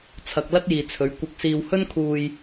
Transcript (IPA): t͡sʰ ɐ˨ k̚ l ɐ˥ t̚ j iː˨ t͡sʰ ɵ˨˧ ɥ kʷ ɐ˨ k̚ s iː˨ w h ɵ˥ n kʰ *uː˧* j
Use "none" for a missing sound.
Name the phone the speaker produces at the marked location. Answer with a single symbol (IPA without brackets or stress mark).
uː˧